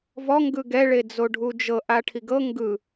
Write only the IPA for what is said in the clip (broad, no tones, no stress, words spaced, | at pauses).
vɔ ŋɡɯɡɛ ɭed͡zoɖʱud͡ʒɤ ʔaʈʰiɡɤ ŋɡɯ